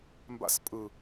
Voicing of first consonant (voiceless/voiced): voiced